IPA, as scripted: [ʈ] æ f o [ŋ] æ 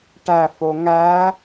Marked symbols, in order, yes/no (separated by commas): yes, yes